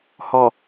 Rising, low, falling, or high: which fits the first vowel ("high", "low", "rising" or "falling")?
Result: low